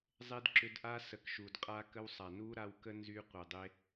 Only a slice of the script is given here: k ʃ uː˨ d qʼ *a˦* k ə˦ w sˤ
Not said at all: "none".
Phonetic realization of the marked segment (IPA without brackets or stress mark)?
a˦